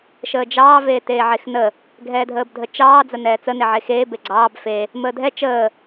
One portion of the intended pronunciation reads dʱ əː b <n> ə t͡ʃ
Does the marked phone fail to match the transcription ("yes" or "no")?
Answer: yes